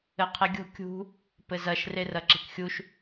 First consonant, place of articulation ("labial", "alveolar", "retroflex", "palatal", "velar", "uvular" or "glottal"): uvular